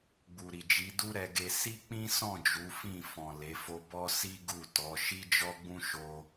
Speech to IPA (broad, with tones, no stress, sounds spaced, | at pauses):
ɡ͡b u˨ ɾ i˨ d͡ʒ i˨˦ d u˦ ɾ ɛ˧ ɡ e˧ s i˦ k͡p ĩ˦ s ɔ̃˦˨ d͡ʒ u˨˦ f ĩ˦˨ f ɔ̃˨ l e˨˦ f o˦ b ɔ˦ s i˦ ɡ u˦˨ t ɔ˨˦ ʃ i˦ d͡ʒ ɔ˦ ɡ͡b ũ˦ ʃ o˧